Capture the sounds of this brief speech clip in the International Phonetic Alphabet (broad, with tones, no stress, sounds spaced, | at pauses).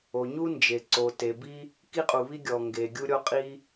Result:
o˩ ɲ u˥ n d͡ʒ e˩ ǀ o˩ t e˩ b i˥ | k i˥ qʼ u˩ β i˥ ɡʲ ɔ˩ ŋ ɡ e˩ ɡʲ u˥ ɾʲ ɔ˥ qʼ i˥